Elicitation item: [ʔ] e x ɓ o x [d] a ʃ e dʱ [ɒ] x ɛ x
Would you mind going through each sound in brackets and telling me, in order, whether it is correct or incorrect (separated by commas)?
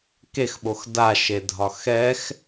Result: incorrect, correct, correct